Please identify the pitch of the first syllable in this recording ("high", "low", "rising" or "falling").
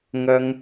high